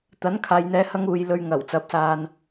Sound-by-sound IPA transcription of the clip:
t̪ ɐ˨˥ n kʰ aː˨ j n̪ ɛː˨˧ h ɐ˧ ŋ uː˨ j l ɵ˧ ɥ ŋ ɐ˨˩ w t͡s ɐ˨˥ p̚ s aː˨ n

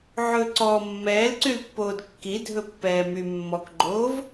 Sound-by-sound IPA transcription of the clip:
ʕ ɵ ǀ ɔ mː ɛː l ǀ y l pː oː d kː i dʱ ɵ pː ɛː m y mː ɔ k ɡ͡ǃ oː v

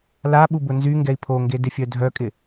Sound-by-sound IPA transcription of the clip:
l a ɓ u b ʊ n z y ŋ ɡ ɛ i̯ pʰ o ŋ ɡ e d ɪ fʲ œ dʱ œ kʼ ɪ

